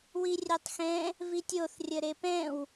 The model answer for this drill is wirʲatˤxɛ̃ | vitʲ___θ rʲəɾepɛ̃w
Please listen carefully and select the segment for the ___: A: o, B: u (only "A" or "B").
A